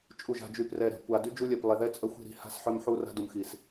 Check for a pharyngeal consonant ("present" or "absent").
present